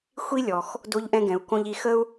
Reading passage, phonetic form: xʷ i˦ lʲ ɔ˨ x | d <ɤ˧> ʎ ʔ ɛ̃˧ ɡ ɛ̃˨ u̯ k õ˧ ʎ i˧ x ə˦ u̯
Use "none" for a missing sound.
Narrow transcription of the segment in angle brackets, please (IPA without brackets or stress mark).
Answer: o˧